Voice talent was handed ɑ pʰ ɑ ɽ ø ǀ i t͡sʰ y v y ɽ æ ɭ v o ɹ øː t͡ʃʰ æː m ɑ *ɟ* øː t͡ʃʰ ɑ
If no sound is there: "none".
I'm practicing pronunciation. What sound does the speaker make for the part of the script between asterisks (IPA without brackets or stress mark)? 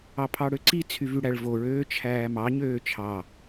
ɲ